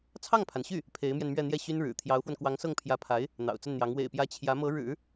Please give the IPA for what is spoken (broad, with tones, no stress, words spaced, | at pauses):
t͡sʰɑ˥˩ŋpʰa˩nɕy˥˩ | pʰe˧˥ɪ̯mjɛ˧nmɥɛ˥˧n̪jɛ˥˩ ɕy˥nɻɻ̩˨˩ t̪ʰjɑ˧˥ʊ̯fwə˧nkwɑ˧˥ŋsɤ˥˩ŋ pʰjä˧˥pʰa˧˥ɪ̯ | n̪ɑ̰˨˩ʊ̯t͡sə˥˩nn̪jɑ˧˥ŋ wḛ˨˩ɪ̯pjä˧˥ t͡ɕʰjä˧˥ mɤ˧˥ɻɻ̩˨˩˦